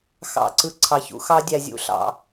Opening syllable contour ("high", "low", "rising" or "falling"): falling